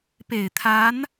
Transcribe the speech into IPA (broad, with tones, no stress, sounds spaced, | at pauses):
p e˨˩ ɪ̯ t̪ʰ a˧˥ n